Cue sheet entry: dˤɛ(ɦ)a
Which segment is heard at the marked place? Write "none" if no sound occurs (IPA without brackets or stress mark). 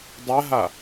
ɦ